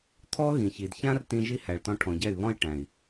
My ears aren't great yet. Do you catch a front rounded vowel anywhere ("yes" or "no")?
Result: yes